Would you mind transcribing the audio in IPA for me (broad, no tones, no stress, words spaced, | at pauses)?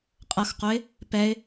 qʼʌxqoɪ̯ | pɛɪ̯